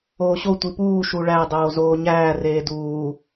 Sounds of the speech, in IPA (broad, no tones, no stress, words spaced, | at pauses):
oːɕo tʷipuː ʃuɭæ dˤoːzoːɲæː reːduː